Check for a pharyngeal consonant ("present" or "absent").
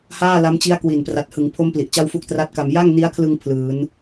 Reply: absent